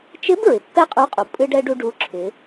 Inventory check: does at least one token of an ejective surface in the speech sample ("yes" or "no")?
yes